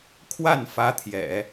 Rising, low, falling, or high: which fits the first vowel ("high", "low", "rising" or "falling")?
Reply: falling